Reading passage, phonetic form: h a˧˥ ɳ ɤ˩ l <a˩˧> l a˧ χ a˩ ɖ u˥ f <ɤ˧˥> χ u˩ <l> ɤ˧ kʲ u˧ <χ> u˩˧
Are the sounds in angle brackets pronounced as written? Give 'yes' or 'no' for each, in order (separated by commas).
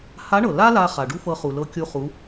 no, no, yes, yes